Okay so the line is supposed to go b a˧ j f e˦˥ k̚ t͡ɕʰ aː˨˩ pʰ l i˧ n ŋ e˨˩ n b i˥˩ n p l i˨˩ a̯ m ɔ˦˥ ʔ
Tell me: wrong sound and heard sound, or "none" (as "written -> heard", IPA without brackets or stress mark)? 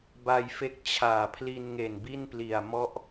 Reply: none